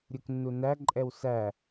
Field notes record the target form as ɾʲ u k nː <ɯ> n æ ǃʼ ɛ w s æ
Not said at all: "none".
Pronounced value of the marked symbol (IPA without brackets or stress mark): u